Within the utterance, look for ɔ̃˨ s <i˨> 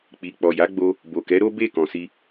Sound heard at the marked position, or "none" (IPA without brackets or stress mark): i˧